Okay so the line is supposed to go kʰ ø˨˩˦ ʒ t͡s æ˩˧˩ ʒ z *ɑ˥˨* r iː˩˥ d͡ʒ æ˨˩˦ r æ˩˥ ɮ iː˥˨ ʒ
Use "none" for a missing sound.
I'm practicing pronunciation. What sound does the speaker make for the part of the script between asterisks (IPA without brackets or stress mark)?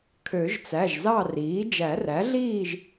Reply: ɑ˥˨